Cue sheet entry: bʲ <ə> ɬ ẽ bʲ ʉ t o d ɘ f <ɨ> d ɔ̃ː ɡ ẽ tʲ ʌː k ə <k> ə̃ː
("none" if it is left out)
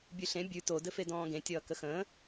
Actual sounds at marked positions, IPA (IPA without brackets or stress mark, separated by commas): ʉ, e, x